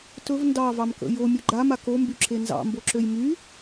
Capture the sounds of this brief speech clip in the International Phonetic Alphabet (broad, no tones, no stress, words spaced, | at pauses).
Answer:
tɵv ndɑvɑmkə̰ jomʲɵ ɡ͡ǃama kombyǁe nzɑ̰mboǁøj my